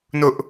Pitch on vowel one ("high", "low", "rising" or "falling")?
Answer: high